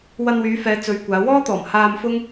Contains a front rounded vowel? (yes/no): yes